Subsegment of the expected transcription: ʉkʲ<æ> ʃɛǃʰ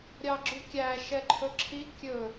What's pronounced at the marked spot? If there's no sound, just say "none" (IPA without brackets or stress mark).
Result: æ